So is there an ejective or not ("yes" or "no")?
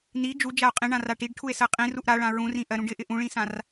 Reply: yes